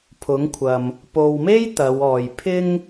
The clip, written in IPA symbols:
pʰʊ˨˥ŋkʷʰɐ˨m | po˨wme˥j t̪ɐ˨˧wɔː˨j pʰɪ˥ŋ

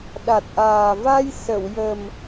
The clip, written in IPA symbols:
ɗa˨˩t̚ʔaː˨˩ va˧j sə˨˩˨wjə˨˩m

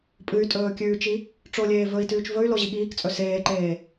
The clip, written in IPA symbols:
pʼɨy̯ tʼɵːkʲʉːt͡ʃi | ʈ͡ʂolʲeː vɵi̯tʉːt͡ʃ vɵy̯lo ʑiɠiːkt͡sʼɵ seːǃeː

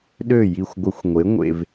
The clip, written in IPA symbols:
ɗø˥˩ji˧˩xʷɡʷə˧˩˧xʷŋʷe˩˥ ŋʷḛ˩v

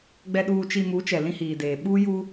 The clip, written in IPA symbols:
ɡ͡bɛ˨ɗuː˨t͡ʃi˨mu˨˦ t͡ʃɛ˨lĩ˦hiː˨deː˨ ɓuː˦ju˦

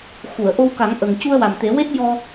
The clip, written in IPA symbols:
xu˨˩˨ə̯ʔo˧wka˨˩˦ŋ ʔə˨˩ŋ cu˧ə̯wa˨˩mt̪e˨˩˦we˦˥t̚ jɔ˧

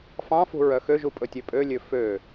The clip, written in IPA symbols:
fɑ̃fṳ ɹœxøʒu pʼɵtʲøpʼølʲø fø

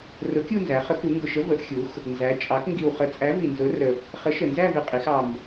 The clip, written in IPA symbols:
rʊ˨˥kʲu˥˧nzæ˩˧ χə˨˥ku˩˧ ŋɡʊ˨˩ʃə˨˥ və˩˧ʔxʲu˩˧x | nzæ˩˧ t͡ʃʼɑ˩˧k ŋɡi˨˩wχə˨˥t͡sʼæ˨˥ vi˨˩nzʊ˨˥rə˨˩ | χə˨˥ʃə˨˩nzæ˥˧vɪ˨˩ qʼi˩˧x ɑ˨˩m

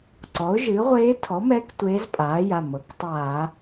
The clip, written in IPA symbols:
ǀɔ˩˥ʊ̯ʒɨ˩˥ʁʷeː˧˥ tʰɔ˩˥mɛ˧˥k tʷeː˧˥zpʼaː˩˥ja˩˧˩mɤ˩˥k tˤaː˧˩˧

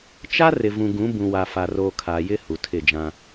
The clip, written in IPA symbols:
t͡ʃa˦ rɪ˨vũ˨ɡũ˨˦ bũ˨wa˨fa˨roː˨ kʰa˨jɪ˦ hu˨tʰɪ˦˨d͡ʒã˦

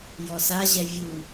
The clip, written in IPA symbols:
jɔsaʑɛ vʲu

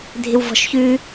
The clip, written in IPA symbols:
dʱɪwvɔ̤ʃçʉ

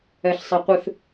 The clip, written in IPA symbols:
ɛɬsˤɛqʷɨθ

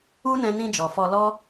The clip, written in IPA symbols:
u˦nɛ̃˧nĩ˧d͡ʒɔ˨ fɔ˧lɔ˦

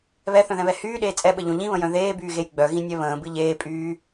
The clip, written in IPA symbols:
βɛθœ̃ðɛ̃βɛ hyːɗeː t͡sʼɛɓəʎõ ʎĩβə̃jœ̃ ðeːbyːɣej ɡ͡bœɣĩnʲɛ βə̃ːbɨ ʎeːpʼyː

